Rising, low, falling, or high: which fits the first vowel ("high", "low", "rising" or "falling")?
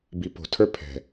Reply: low